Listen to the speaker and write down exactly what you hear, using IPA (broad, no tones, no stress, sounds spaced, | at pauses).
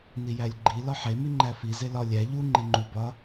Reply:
n i j æ lʲ ɡ͡ǃ i l ɒ ħ e m i ŋ͡ǃ æ f i z e l ɒ lʲ æ ʎ u ŋ͡ǃ e ŋ͡ǃ u b ɒ